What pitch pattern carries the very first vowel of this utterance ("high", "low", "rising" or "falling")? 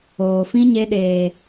low